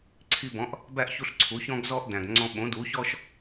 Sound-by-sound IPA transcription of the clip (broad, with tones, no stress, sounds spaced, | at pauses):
ǀʰ i˧ b ɔ̃˩˥ ʔ | b æ˥˩ ʔ ç u˧ ɬ ǀʰ u˩˥ ç ɔ̃˥ ɡ z ɔ˥ ʔ d æ̃˩ ɡ ŋ͡ǀ ɔ̃˧ ɓ õ˩˥ d u˩˥ ç ɔ˥ ʃ